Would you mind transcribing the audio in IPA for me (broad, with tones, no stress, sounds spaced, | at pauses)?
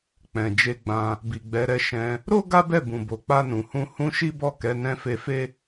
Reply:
k͡p ɛ̃˨ d͡ʒ e˧ ɡ͡b ã˧ | b i˨ ɡ͡b ɛ˨˦ ɾ ɛ˧ ʃ ɛ̃˧ | ɾ o˦ ɡ a˦ b ɛ˦˨ b ũ˨ b o˨ k͡p a˧ n ũ˨ h ũ˧ h ũ˧ ʃ i˦ b ɔ˦˨ k ɛ˨˦ n ɛ̃˧ f e˧ f e˦